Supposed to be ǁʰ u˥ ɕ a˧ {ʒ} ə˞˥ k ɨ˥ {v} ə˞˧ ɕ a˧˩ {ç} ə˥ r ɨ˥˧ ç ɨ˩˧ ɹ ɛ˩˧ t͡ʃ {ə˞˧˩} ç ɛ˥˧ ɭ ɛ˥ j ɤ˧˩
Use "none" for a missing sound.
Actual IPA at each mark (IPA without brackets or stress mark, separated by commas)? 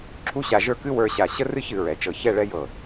ʒ, w, ɕ, ɤ˧˩